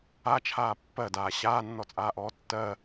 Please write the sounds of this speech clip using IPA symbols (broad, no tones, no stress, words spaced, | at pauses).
at͡ʃʰaː pːɜdaː ɕaːnːɔt͡sʼaːʔɔː tːɜ